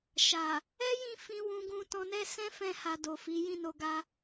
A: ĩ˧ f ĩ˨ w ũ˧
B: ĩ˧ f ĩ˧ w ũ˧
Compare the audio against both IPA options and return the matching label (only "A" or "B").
B